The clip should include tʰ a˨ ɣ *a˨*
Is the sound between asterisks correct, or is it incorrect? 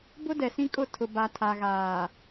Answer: incorrect